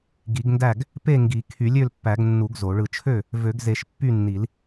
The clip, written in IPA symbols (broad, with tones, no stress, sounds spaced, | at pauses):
ɡ i˨˩˦ ɡ n d æ˥˨ ɡ | p e˥˨ ŋ ɡ i˨˩˦ kʰ y˨˩˦ lʲ ø˥˨ l pː æ˨˩˦ ɡ nː u˨˩˦ ɡ z o˨˩˦ ɭ ɯ˥˨ t͡ʃʰ ø˥˨ | v ø˨˩˦ ɡ z e˨˩˦ ʃ pː y˥˨ nː i˨˩˦ l